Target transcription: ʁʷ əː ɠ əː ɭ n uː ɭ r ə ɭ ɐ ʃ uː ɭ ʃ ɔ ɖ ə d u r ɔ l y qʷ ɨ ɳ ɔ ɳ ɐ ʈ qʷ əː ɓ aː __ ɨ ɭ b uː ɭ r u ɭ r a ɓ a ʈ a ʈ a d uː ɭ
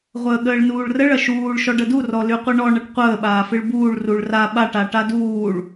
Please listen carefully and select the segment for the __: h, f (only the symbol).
f